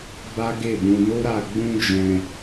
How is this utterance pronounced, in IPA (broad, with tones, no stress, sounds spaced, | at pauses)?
b a˦ ɡ e˦˨ b ũ˧ n o˦ ɾ a˧ ɡ͡b ũ˦ d͡ʒ ɛ̃˧